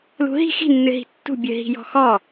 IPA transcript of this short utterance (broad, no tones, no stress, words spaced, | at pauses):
lṳɦi̤ xi̤nːɨɦi̤ tːṳbʲɨ ɦi̤jɔ̤xɔ